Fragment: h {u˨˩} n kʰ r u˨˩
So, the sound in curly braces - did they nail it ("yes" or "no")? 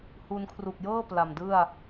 no